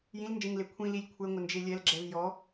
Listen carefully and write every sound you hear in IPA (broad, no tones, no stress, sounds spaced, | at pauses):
j ĩ l n d͡ʒ ẽ ŋ l e kʷʰ ĩ l i lʲ kʷʰ ɛ ŋʷ ɪ n d͡ʒ e lʲ ɛ l ɡ͡ǁ ɛ v j ɔ